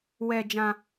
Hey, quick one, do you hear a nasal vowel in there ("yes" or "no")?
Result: yes